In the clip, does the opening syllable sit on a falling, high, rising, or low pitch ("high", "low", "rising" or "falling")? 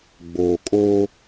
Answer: low